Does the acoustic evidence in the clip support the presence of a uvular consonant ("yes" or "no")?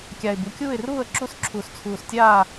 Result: no